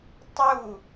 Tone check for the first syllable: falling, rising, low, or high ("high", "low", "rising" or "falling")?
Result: falling